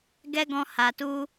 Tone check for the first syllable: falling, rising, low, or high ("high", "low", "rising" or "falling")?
high